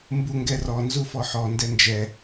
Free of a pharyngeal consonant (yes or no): no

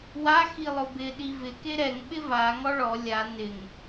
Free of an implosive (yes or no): no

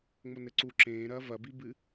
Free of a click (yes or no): no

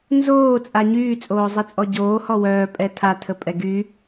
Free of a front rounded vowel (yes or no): no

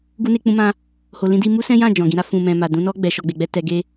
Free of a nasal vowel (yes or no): no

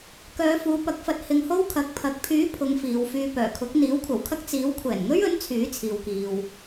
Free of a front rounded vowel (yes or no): no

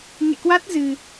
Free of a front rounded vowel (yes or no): yes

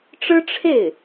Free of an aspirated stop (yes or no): no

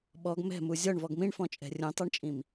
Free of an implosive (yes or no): no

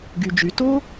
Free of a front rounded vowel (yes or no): no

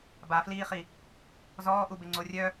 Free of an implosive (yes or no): yes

